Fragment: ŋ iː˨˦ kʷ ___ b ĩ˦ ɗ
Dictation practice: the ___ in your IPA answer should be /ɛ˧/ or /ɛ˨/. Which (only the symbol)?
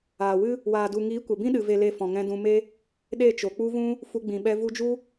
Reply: ɛ˨